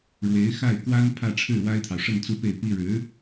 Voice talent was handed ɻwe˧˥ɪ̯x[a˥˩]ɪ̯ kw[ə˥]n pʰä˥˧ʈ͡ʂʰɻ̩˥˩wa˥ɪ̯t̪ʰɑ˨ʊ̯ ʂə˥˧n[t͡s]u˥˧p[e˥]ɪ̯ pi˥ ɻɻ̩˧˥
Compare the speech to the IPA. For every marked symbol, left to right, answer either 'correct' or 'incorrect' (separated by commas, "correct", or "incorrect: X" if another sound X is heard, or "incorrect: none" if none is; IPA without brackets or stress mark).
correct, incorrect: a˥, correct, incorrect: e˥˩